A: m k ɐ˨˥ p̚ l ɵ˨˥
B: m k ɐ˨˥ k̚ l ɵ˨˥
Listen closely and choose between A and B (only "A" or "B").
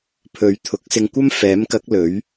B